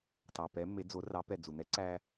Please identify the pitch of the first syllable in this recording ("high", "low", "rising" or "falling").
low